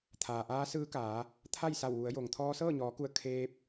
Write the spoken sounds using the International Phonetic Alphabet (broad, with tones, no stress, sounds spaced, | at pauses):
t̪ʰ aː˩ ʔ aː˧˥ s ɯː˧˥ k aː˩˧ | t̪ʰ a˥˨ j s a˧˩ w ʋ u˩˧ ə̯ j o˩ ŋ t̪ʰ ɔː˧ s ɤː˥˨ ɲ ɔː˩˧ k u˧˩ ə̯ kʰ eː˧ p̚